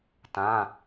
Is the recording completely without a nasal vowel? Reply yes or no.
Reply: no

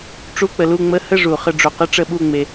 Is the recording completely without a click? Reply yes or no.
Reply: yes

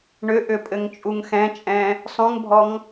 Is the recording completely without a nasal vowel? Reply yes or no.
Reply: no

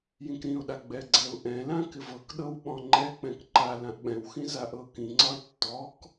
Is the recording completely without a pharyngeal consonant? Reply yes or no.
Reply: yes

